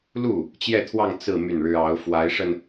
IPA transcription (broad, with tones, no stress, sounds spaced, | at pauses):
l u˥˩ | t͡ɕ j ɛ˥˧ t̪ʰ w ɑ˥˧ ŋ t͡s ɹ̩˥˧ m y˥˩ n ɻ ɻ̩˥ ɑ˧˥ ʊ̯ f w a˧˥ ɪ̯ ʂ ə˧ n